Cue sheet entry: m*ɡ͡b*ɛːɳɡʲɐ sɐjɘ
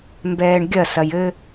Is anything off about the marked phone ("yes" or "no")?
yes